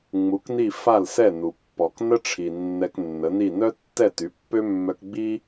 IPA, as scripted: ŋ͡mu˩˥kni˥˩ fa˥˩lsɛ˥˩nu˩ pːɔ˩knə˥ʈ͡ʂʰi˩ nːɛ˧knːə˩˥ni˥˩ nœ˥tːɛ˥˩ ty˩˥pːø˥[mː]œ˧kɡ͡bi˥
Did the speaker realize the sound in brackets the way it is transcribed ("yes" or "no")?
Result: yes